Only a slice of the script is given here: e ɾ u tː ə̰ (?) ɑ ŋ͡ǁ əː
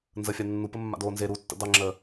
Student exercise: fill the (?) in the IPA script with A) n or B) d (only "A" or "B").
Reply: B